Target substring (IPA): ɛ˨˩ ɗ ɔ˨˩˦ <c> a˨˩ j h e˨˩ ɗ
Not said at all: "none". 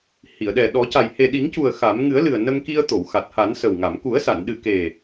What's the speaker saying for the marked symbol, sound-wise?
c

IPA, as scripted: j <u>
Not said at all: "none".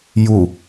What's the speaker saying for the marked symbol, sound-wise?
u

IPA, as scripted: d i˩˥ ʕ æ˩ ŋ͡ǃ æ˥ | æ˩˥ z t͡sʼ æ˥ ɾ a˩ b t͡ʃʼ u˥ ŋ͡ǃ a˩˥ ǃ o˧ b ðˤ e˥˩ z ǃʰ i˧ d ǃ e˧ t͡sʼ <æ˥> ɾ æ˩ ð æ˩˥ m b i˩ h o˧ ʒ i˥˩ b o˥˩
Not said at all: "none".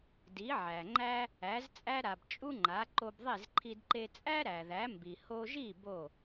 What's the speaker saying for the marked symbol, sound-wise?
æ˥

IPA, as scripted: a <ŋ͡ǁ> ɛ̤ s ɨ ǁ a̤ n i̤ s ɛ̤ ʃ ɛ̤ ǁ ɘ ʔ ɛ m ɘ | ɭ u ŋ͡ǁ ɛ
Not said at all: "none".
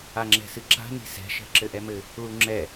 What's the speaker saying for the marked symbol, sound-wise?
ŋ͡ǁ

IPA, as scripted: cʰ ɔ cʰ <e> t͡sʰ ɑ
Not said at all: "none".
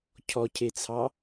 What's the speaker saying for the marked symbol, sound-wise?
e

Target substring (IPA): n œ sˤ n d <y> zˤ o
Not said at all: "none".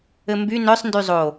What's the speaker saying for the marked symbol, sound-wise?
y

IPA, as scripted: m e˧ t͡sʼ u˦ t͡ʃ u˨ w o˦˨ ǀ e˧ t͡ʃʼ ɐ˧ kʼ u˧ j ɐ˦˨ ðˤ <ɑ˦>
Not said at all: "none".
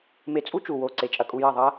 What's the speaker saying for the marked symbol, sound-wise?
ɐ˦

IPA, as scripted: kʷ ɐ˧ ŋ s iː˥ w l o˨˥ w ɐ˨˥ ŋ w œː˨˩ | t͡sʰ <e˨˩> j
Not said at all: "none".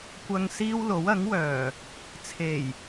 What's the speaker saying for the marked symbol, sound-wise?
e˨˩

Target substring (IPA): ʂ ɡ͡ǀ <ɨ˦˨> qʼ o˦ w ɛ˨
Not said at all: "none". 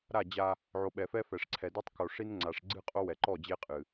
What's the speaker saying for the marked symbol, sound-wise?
ɨ˦˨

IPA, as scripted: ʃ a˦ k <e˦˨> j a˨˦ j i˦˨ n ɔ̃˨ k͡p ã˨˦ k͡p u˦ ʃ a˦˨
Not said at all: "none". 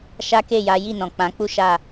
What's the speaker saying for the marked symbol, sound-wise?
e˦˨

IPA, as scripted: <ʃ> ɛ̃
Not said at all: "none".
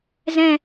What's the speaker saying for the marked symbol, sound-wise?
z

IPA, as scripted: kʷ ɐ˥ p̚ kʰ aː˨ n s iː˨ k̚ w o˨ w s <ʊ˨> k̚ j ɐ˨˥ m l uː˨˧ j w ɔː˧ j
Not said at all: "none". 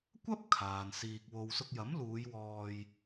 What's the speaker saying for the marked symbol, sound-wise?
ʊ˧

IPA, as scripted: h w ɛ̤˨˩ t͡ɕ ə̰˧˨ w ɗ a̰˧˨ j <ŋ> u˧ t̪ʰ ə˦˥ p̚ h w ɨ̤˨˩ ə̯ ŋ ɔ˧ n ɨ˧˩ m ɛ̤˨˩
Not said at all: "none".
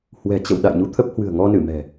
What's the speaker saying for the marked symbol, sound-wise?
ɲ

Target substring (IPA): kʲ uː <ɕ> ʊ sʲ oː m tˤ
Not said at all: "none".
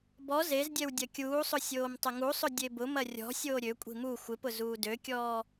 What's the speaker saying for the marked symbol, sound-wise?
sˤ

